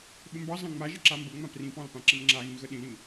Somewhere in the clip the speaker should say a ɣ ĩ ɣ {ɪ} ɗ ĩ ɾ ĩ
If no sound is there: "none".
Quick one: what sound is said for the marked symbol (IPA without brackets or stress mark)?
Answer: ə